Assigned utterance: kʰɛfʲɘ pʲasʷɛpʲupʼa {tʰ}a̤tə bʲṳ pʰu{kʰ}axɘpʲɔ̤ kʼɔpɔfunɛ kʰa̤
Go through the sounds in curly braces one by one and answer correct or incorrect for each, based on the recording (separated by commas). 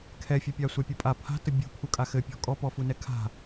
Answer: incorrect, incorrect